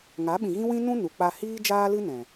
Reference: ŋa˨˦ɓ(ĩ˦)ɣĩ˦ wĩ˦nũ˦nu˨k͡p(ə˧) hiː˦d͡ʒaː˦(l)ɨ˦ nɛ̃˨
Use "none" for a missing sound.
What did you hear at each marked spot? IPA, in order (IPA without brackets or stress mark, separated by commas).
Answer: ĩ˨, a˧, l